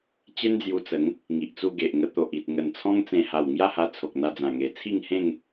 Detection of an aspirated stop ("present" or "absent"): present